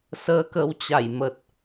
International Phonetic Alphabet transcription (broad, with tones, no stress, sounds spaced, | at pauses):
s əː˧ k ə˧ w t͡ɕ a˧˩ j m ə˨˩ t̚